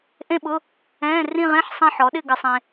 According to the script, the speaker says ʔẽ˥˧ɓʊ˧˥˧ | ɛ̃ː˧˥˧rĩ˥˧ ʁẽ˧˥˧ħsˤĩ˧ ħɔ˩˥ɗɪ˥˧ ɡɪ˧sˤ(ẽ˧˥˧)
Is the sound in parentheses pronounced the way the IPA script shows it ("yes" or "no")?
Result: no